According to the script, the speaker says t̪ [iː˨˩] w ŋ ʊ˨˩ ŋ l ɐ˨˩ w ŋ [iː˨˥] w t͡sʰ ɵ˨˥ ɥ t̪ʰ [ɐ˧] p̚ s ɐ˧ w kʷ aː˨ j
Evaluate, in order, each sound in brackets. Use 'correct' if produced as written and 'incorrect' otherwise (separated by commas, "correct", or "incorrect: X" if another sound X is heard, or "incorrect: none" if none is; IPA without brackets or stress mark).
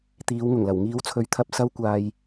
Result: incorrect: iː˨˧, correct, correct